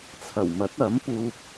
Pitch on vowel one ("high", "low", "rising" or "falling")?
low